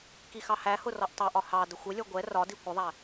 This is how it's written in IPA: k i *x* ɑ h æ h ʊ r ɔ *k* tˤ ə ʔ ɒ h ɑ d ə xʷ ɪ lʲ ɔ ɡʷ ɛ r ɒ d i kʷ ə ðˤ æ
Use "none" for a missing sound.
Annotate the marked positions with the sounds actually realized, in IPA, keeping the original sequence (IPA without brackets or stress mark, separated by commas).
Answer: x, ʔ